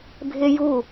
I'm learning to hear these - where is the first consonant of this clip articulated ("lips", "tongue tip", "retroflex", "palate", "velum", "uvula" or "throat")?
lips